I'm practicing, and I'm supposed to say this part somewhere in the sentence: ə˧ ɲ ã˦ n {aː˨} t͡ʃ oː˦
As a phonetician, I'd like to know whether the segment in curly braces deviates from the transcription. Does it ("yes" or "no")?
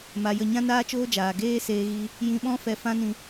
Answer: yes